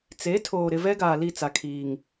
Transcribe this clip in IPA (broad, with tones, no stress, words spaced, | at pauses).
t͡se˨˦tʰoː˨ ɾɪ˨vɛ˦ ɡaː˨li˦˨t͡sa˨kʰiː˨ŋ